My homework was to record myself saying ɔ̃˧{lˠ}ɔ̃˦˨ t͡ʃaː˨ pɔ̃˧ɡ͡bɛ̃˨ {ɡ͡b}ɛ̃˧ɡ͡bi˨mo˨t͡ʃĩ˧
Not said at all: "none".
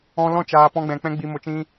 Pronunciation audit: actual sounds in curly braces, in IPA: l, k͡p

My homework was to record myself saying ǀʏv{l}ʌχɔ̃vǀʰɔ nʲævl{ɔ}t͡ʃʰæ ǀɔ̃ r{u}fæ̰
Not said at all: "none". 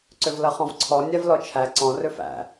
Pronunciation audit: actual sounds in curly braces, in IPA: l, ɔ, ʏ

